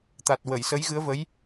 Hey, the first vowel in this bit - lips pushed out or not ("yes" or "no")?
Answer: no